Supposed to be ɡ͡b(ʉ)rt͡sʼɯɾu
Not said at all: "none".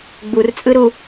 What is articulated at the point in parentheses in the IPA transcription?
u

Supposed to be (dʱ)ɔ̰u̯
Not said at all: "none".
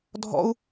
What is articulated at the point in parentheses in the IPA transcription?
dʱ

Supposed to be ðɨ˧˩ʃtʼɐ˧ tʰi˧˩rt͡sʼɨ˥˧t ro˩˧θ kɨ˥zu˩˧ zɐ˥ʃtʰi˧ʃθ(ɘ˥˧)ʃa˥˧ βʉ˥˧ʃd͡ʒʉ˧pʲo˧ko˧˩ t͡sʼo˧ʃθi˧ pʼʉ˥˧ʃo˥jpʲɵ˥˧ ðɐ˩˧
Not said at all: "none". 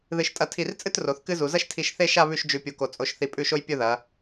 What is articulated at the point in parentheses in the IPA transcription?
e˥˧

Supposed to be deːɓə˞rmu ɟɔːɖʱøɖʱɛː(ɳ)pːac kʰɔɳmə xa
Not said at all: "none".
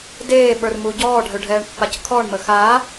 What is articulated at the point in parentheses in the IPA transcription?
ɳ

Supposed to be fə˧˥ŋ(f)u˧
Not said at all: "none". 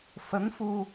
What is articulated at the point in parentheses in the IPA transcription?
f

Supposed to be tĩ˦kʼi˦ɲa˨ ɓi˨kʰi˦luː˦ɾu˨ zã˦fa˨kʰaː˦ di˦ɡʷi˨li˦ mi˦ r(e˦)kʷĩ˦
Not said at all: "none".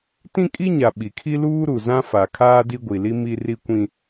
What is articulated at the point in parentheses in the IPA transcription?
i˦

